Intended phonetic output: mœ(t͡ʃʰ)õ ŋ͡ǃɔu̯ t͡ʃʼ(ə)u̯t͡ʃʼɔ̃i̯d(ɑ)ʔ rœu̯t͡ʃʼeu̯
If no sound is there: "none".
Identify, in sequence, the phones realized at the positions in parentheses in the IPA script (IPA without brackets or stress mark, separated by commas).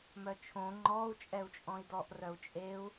t͡ʃʰ, ɛ, ɔ